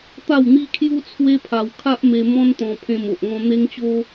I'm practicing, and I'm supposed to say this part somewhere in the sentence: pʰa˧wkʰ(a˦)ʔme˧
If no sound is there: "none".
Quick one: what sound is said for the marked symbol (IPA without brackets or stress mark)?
a˦